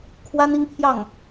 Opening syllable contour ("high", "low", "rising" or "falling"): high